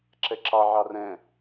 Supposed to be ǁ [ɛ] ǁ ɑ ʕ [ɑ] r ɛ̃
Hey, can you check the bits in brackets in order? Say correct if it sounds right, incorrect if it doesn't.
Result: correct, correct

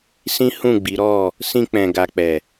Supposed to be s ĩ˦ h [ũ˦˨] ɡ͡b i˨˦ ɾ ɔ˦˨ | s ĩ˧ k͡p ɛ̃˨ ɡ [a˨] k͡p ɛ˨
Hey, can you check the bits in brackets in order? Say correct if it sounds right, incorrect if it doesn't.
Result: correct, correct

